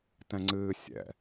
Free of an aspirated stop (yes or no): yes